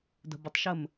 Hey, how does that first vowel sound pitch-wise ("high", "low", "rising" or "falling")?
low